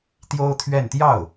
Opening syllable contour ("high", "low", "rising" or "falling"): high